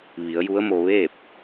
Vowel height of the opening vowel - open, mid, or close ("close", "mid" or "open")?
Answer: close